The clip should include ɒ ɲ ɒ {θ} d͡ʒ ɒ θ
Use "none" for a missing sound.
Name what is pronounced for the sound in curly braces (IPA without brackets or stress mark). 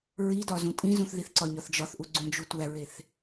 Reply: θ